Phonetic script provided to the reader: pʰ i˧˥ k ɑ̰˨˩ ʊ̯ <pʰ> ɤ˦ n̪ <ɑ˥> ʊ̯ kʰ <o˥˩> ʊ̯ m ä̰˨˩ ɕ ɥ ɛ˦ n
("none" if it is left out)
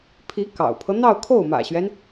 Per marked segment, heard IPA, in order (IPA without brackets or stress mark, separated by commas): pʰ, ɑ˥˧, o˥˩